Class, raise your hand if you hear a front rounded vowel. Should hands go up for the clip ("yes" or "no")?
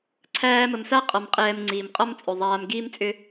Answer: yes